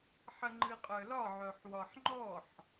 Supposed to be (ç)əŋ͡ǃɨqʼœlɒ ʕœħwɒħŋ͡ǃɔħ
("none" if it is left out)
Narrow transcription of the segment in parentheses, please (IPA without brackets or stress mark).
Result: ħ